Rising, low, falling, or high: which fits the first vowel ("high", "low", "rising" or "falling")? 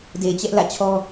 low